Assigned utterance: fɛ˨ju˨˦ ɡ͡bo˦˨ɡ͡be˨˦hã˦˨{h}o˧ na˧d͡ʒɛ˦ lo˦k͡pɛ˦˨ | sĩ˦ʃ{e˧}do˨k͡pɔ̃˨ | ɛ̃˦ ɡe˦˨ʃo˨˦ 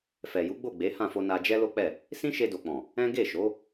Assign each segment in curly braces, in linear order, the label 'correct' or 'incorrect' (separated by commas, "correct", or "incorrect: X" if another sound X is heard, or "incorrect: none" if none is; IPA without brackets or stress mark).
incorrect: f, correct